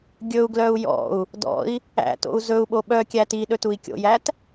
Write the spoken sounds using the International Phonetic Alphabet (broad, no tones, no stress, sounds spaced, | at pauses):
ɡʲ ɵ u̯ ɡ l œ u̯ j ɔ̰ u̯ | d ɔ̰ i̯ | æ̰ t o̰ u̯ z ɵ u̯ ɓ o ɓ œ kʲ æ t i ɗ ɵ t u i̯ kʲ o̰ j æ t